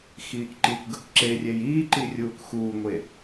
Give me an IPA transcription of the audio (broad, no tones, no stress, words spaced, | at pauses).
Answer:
xiːkǃikʷɡɘkʷ ǁerʲej iːǃirʲuːk xuːŋʷe